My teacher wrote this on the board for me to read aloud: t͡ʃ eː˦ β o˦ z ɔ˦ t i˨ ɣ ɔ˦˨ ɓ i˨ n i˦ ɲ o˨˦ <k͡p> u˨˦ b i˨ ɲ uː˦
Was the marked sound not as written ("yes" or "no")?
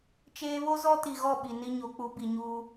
no